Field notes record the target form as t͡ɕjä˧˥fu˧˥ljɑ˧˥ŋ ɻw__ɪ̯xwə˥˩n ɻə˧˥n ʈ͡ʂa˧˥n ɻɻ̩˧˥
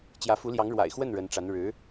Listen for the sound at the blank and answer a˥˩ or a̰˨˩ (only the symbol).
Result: a̰˨˩